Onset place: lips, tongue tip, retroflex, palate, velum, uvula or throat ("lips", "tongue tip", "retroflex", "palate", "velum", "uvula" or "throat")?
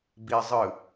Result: lips